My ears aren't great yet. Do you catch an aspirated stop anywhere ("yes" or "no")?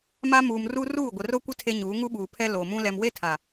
yes